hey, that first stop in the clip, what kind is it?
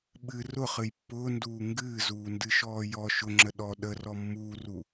implosive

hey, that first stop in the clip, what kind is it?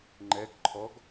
click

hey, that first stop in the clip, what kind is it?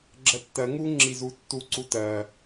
click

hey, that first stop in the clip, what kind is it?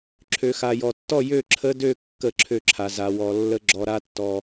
click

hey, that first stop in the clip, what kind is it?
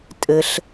ejective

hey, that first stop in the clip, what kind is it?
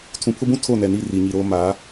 aspirated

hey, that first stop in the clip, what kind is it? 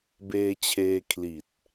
plain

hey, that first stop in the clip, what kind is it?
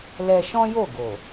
plain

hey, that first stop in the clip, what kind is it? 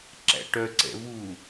click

